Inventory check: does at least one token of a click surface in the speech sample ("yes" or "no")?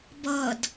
no